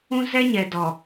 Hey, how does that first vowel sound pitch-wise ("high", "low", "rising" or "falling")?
high